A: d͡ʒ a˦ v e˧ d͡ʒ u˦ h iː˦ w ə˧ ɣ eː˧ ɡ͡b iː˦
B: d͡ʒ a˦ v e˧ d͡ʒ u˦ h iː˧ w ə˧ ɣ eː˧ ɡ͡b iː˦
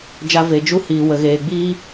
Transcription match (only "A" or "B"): B